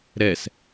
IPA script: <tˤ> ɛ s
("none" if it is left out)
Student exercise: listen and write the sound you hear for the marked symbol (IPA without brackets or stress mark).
ɾ